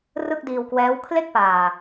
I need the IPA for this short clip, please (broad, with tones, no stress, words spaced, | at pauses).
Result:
rɯ˥˩k̚diː˧wkwɛː˦˥w kʰle˥˩k̚paː˨˩